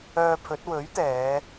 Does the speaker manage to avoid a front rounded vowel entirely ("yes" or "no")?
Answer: no